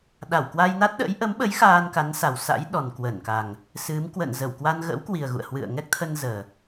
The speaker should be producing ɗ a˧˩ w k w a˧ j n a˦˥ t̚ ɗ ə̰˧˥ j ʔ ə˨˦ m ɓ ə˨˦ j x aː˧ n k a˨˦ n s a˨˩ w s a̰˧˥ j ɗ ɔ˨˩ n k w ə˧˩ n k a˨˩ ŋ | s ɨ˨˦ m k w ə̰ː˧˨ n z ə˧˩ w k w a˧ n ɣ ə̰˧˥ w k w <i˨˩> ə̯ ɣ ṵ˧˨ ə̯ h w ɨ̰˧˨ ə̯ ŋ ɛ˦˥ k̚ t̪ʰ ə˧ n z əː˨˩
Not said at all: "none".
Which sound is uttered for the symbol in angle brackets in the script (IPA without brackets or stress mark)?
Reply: i˨˩